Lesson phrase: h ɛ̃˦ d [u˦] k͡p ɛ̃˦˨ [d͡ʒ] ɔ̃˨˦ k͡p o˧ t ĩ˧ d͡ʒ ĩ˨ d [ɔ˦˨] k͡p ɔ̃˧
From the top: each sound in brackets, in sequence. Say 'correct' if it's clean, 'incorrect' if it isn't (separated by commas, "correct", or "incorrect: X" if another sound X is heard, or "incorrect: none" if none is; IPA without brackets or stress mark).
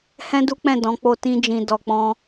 correct, incorrect: d, incorrect: ɔ˨